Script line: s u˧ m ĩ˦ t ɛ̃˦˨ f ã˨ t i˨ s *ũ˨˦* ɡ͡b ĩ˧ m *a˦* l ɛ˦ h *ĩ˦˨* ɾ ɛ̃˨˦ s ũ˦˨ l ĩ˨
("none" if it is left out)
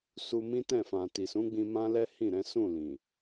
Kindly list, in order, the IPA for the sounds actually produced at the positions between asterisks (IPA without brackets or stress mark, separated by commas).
ũ˨˦, ã˦, ĩ˦˨